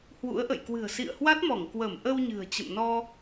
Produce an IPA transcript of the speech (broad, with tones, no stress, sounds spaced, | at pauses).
h w ṵ˧˥ ə̯ ʔ ə̰˧˨ j k w ɨ̤˨˩ ə̯ s ḭ˧˨ ə̯ h w a˦˥ t̚ m ɔ˧˩ ŋ k w ə˧˩ m ʔ ə˧ w ɲ ɨ̤˨˩ ə̯ t͡ɕ ə̰˧˨ m n ɔ˧